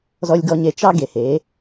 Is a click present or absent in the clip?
absent